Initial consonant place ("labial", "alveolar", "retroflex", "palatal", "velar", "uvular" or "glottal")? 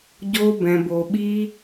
palatal